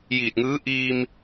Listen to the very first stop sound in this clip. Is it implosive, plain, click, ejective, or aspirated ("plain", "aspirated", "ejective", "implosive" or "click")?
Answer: plain